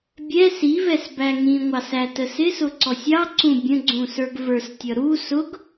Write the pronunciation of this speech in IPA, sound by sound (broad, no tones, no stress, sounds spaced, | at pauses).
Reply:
bʲ ɛ s i v ɛ s b æ ŋ ĩ ŋʷ ɑ s æ t ə s ɪ s ʊ ǀ ɔ sʲ ɑ ǀ ũ bʲ ə̃ ɡ͡ǀ ũ s ə˞ ɡ v ə˞ s tʲ ʌ ɾ u s ʊ ɡ